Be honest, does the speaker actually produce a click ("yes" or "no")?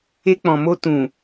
no